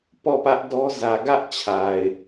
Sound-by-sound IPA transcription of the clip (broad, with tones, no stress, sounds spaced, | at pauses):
p ɔ˦˨ p ä˦ ʔ d ɔ˦ z ä˨ ɡ ä˦ ʔ t͡ɕʰ a˨ ɪ̯